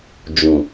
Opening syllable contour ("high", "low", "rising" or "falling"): low